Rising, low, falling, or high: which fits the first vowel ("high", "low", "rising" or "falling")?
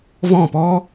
falling